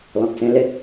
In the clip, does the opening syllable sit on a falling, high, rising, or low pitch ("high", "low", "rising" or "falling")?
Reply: low